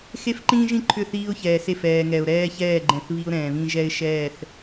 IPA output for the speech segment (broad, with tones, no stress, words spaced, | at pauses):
xe˦fǃĩː˦ʒĩ˦ ǃʰʏ˦˨θiː˦ʊ̯çɛː˨se˦˨f ɛː˨ŋɛ˨ʊ̯ ɾɛː˦çɛː˦˨ɡ͡ǃɛ̃˨θ βi˦ʊ̯ɾɛ̃ː˨βĩ˦ ʒɛ˦ɪ̯ ʃɛː˦˨θ